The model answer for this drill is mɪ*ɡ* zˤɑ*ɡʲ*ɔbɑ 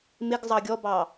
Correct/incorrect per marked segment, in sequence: correct, correct

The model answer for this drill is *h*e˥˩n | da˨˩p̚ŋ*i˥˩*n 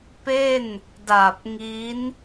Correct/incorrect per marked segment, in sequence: incorrect, incorrect

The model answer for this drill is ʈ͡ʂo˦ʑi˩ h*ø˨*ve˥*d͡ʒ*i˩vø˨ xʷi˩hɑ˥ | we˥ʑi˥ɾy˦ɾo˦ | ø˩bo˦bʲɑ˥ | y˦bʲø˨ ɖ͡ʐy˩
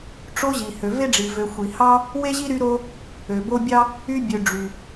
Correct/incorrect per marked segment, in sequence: incorrect, incorrect

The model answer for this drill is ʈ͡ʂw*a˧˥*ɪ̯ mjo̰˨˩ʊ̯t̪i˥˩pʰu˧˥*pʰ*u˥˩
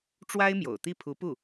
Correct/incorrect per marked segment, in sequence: incorrect, incorrect

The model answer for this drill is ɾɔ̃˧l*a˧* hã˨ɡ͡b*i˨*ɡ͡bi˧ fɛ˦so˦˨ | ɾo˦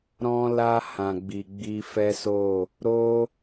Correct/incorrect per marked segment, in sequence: correct, correct

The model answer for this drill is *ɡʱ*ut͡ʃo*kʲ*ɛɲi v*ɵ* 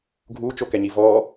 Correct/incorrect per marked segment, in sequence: correct, incorrect, incorrect

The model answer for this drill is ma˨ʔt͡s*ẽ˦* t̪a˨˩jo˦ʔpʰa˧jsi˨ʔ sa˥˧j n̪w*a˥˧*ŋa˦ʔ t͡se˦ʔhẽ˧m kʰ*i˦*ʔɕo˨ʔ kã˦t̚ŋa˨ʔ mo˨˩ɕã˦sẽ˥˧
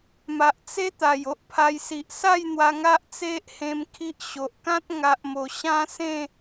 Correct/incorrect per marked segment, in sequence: incorrect, incorrect, correct

